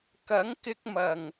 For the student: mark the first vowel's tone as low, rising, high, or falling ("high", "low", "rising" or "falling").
rising